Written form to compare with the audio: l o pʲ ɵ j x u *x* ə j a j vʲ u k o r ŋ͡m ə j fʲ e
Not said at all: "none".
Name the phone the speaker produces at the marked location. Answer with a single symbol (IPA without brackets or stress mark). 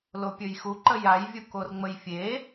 ǃ